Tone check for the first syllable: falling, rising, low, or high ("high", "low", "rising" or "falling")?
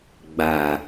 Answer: low